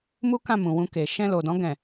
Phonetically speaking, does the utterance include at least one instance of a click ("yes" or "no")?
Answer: no